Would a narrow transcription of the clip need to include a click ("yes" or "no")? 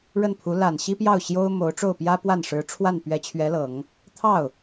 no